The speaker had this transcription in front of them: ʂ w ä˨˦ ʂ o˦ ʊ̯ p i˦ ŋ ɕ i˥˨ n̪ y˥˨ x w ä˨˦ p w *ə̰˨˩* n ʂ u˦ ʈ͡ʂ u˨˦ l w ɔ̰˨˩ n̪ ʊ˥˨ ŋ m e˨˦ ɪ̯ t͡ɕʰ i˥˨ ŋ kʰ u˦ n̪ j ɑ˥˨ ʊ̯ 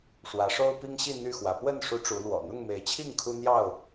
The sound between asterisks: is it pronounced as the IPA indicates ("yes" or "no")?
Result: no